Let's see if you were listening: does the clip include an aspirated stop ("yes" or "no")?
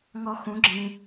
no